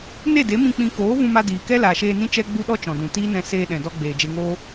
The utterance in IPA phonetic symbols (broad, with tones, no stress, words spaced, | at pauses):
ne˦˨de˨˦mĩ˧ k͡pĩ˧ koː˨˦ vũ˧ma˧ diː˨kɛ˦ laː˨ʃeː˧nĩ˦ t͡ʃɛ˦ɡ͡bu˦ɗɔ˦ t͡ʃɔ̃˨dũ˨ tiː˦nɛ̃˧ seː˧ɗɛ̃˨dɔ˧ ɡ͡beː˨d͡ʒe˧ŋoː˦